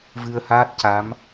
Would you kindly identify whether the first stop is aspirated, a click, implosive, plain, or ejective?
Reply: plain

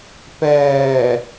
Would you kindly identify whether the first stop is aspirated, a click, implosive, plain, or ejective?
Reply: plain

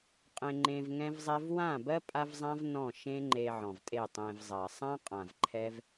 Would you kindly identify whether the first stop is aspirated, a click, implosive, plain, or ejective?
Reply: ejective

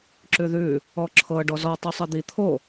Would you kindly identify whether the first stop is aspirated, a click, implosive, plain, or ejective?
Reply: click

